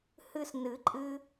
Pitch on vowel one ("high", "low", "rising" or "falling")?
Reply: high